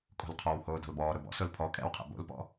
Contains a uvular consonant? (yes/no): yes